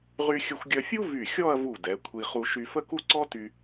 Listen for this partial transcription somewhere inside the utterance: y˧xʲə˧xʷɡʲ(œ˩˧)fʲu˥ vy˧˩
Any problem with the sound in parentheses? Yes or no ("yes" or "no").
yes